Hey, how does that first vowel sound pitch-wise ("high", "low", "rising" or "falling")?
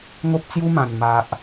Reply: high